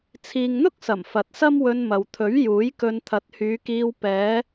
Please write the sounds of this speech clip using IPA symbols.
t͡sʰ iː˨ ŋ n̪ ʊ˥ k̚ s ɐ˨˩ m f ɐ˨ t̚ s ɐ˥ m w ɵ˧ n m ɐ˨ w t̪ʰ ɵ˨˥ ɥ j uː˨˥ j k ɵ˧ n t̪ʰ ɐ˨˥ t̚ h yː˨˧ k iː˧ w p ɛː˨˧

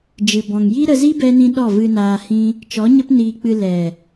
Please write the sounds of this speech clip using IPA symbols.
d͡ʒ ɨ˨ b ɔ̃˨ ŋ j i˦ ɾ ə˧ z i˦ b ɛ˦ n ĩ˦ ɗ ɔ˦˨ v ɨ˧ n aː˧ h ĩ˦ | t͡ʃ ɔ˨˦ ɲ ə˦ p n iː˧ k͡p ɨ˧ l ɛ˨

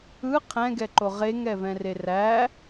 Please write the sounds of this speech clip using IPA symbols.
ɯ qʰ ɛ̃ ɡ ɛ ǃ o ʁ e ŋ ɛ v ɛ̃ r e r æ

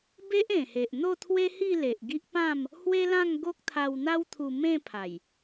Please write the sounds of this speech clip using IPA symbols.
b e˦ ʔ ẽ˨˩ h e˨ ʔ n̪ o˥˧ t̪ʰ w e˦ h i˥˧ l e˨ ʔ ɡ i˦ ʔ p ã˥˧ m | h w e˦ l ã˥˧ ŋ ɡ o˦ k̚ t̪ʰ a˧ w n̪ a˦ w t̪ʰ u˧ m ẽ˥˧ pʰ a˨˩ j

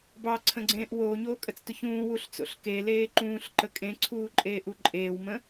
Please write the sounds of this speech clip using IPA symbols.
b ɑ ǀʰ ə̃ ɡ͡ǀ ẽː ʔ w oː ɲ oː kʼ ə t͡s t o ç ũː w u ɬ t͡s o̰ ɬ k e l eː ǃ ũː ɬ ǃ ə kʼ ẽ ǀʰ uː ǃʼ eː ʔ u ǃʼ eː w m ə̃

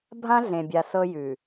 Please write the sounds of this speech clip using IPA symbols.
bʱ ã˦ ɮ ẽ˨ bʲ a˨ s ɤ˦ j ʉ˨

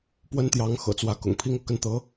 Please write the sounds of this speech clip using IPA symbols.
p w ə˥ n t̪ j ɑ˧˥ ŋ x ɤ̰˨˩ t͡s w ä˧˥ k ʊ̰˨˩ ŋ pʰ i˥ ŋ ɤ˥˧ k ə˥˩ n t̪ ɤ˧˥

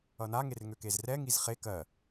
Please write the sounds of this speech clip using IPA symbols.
ʌ n a ŋ e r ŋ ø k e z r ɛ ŋ i z χ e k ɜ

